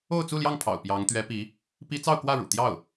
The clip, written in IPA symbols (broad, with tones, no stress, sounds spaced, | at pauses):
o˥˧ ʊ̯ t͡s u˥˧ l j ɑ˥˩ ŋ pʰ ɑ̰˨˩ ʊ̯ p j ɑ˧˥ ŋ t̪ ɥ ɛ˧˥ p i˧˥ | p i˥ t͡s ɑ˥˧ ʊ̯ k w ä˥˩ ɻ ṵ˨˩ t̪ j ɑ˥˩ ʊ̯